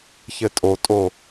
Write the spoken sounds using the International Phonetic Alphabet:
çɘtʼotʼo

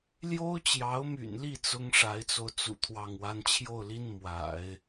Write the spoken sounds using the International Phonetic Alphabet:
ljo˥ʊ̯t͡ɕjɑ˧˥ʊ̯my̰˨˩nli˥˩ t͡sʊ˥ŋʂa˧˥ɪ̯t͡so˧ʊ̯t͡sṵ˨˩ t̪ʰwɑ˥˩ŋwa˥n t͡ɕʰjo˥˩ʊ̯li˥n mwa̰˨˩˦ɪ̯

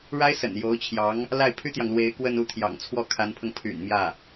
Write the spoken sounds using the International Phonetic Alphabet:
ɻa˥ɪ̯sə̰˨˩n jo˧˥ʊ̯t͡ɕʰjɑ˧˥ŋ | la˥˩ɪ̯pʰy˥t̪jɑ˨ŋlwe˧˥ɪ̯ kwə˥˧nu˥˩t̪ʰjɑ̰˨˩ŋ t͡sʰwɔ˥˩kʰa˧˥npʰɤ˧ŋ pʰy̰˨˩n mjä˥˩

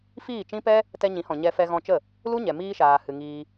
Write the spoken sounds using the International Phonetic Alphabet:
fiː˦˨t͡ʃĩ˦pɛ˦ | tɛ˧ɲĩ˨˦hɔ̃˨ ɲɛ˧fɛ˧ɣɔ̃˧t͡ʃə˦˨ | lu˦ɲɛ˨ miː˧ʃaː˨hɨ˨ ŋiː˧

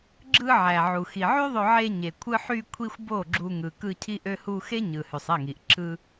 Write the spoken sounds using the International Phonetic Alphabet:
ɡ͡ǁɯ˧ ʕæ˨ʕu˨ xi˨ʕy˦ðˤø˧ʕe˧ ɲe˨kʷʰɯ˧ħy˧kʷʰi˧xʷ bo˦˨ɡ͡ǁu˧ ŋɯ˨kɯ˧ cʰi˧ʔø˧hu˧ xe˦ɲɯ˨ hy˨sˤe˦˨ŋi˨ʔ ǁʰɯ˧

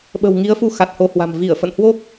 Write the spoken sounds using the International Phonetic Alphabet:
ɓə̤˨˩wŋi˨˦ə̯fu˧ xa˨˩t̚ho˧hwa̤˨˩m vi˧˩ə̯fə̰˧˨nhwo˦˥k̚

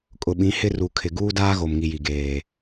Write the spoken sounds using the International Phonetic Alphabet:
kʼʊ˨ɓĩ˨˦hɪ˦ ru˨kʰɪ˨ ɡuː˦daː˦ɣo˨mŋi˨ ji˨ɡeː˨

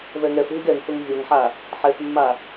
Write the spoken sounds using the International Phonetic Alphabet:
vɛŋɛfɦiɡ ɛŋθʊŋ vʲɔŋħa | ħɛθmːa

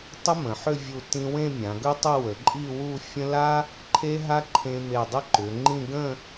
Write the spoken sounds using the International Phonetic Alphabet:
tˤə˥mə̃˩˧ħʏ˥˧ vʲu˧˩ tĩ˧wẽ˥˧ mʲã˩˧ɡɵ˥tˤə˥˧ wə˩˧ǃʼi˥˧wu˥˧ fʲə̃˥ la˥ | ǃʰe˥ɦa˥ ǃʰẽ˧me˧˩dˤə˥ ǃʏ˩˧ ŋ͡ǃĩ˥˧ ɡə̃˥˧

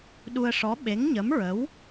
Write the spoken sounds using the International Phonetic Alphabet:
ɗu˧ə̯ʂɔ˧˥ ɓe˧˥ŋɲə˧˥mɹə˧˥w

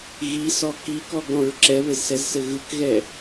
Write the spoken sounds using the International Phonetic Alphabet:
ɣisɔ kikɔɡɾɔ̃ɹ ǁɛβɘzsɛzsɘ ɣɯkɣɛ

